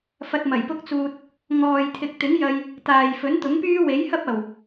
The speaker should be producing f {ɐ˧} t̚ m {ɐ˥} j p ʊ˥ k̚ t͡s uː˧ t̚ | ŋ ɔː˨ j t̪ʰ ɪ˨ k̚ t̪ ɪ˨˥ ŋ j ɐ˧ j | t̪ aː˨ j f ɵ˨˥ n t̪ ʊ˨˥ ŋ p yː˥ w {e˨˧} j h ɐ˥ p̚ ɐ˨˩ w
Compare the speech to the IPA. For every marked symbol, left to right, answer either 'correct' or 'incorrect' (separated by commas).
correct, incorrect, incorrect